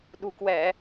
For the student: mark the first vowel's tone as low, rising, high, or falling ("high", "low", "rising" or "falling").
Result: low